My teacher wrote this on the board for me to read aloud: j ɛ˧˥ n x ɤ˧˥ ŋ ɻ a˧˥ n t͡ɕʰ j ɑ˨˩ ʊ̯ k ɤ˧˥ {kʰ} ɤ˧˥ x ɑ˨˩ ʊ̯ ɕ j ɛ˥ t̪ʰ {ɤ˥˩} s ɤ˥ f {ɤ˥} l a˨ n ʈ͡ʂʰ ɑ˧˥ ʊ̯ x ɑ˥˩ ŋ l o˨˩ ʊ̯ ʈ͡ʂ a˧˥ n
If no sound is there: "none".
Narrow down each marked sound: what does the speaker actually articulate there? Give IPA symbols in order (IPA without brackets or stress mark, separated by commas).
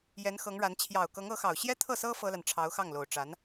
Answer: ŋ, ɤ˥˩, ɤ˥